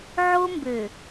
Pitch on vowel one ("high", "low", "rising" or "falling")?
high